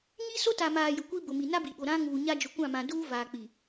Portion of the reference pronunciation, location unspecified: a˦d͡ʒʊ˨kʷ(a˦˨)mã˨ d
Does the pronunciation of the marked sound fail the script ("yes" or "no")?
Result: yes